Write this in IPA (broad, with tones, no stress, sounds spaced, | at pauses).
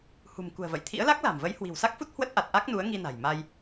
h ṳ˨˩ m k ṳ˨˩ ə̯ v ə̰˧˨ j t̪ʰ ḭ˧˥ ə̯ l a˦˥ k̚ l a̤˨˩ m v ə˨˦ j h w i̤˨˩ w s a˦˥ k̚ f u˦˥ t̚ h w ə˦˥ t̚ ʔ a˨˩ t̚ ʔ a˦˥ k̚ n u˨˦ ə̯ ŋ i˧ n a̤˨˩ j m a˧ j